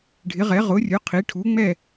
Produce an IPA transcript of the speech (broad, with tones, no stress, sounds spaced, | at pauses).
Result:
ɖʱ ɪ˩˥ ʁ ɛ˩˥ ʁ ʊ˩˥ rʲ ʊ˩˥ qʰ i˩˥ ʈʰ u˩˥ ŋ͡m ɛ˥˨